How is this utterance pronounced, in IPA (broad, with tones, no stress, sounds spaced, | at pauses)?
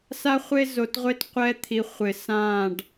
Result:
s a˦ χʷ e˦ z o˨ t ʁʷ e˦ t qʷ ɛ˦ t̪ʰ i˨ χʷ ɪ˨ s ã˦˨ ɖ